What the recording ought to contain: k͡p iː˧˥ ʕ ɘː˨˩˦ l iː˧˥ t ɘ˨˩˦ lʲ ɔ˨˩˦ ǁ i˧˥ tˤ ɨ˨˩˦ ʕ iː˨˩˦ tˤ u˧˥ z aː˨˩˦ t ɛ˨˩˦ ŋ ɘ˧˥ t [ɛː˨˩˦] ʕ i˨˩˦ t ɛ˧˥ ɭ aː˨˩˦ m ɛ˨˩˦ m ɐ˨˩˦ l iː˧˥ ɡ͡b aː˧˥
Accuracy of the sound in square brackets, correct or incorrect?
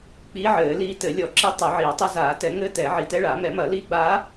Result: correct